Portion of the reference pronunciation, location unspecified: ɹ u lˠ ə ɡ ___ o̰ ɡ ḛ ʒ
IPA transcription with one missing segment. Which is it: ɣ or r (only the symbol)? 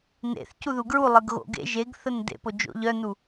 ɣ